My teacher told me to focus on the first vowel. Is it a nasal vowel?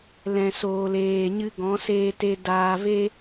yes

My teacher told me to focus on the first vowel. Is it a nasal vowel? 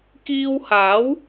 no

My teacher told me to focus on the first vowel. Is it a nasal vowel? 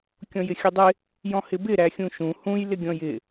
yes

